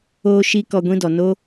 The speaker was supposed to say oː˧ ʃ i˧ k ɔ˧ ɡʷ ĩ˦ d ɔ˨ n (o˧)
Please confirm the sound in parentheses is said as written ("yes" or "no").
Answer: no